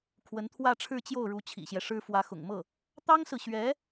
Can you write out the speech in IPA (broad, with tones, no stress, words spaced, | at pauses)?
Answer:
kʰwə˧˥nt̪ʰwä˥˧ʈ͡ʂʰɻ̩˥˧t͡ɕjo˥˩ʊ̯ ɻu˧˥ t͡ɕʰḭ˨˩ɕjɛ˦ʂɻ̩˥ fwä˧˥xʊ̰˨˩ŋmɤ˥˩ | t̪ɑ˥ŋsɹ̩˨ɕɥɛ˧˥